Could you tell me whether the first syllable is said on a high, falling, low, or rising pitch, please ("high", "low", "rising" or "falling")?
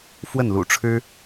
falling